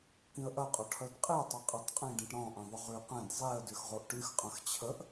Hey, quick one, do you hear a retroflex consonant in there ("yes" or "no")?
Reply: yes